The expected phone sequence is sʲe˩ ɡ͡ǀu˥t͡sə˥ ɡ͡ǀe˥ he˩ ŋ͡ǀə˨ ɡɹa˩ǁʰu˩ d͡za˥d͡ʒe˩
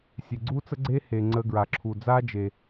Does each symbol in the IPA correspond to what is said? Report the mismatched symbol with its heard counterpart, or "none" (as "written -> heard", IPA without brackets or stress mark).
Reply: none